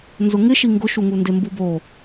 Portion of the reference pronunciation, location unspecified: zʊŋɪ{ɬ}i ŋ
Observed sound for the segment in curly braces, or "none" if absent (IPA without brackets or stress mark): ʃ